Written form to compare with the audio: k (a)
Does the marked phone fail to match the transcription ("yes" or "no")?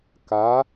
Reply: no